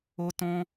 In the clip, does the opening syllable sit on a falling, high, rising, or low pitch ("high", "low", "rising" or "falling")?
high